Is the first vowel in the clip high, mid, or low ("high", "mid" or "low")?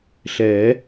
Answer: mid